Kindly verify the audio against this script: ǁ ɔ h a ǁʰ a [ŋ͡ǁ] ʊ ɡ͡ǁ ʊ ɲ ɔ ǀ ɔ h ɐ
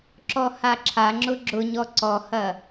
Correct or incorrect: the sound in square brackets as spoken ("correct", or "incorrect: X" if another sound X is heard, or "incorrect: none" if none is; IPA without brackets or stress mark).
correct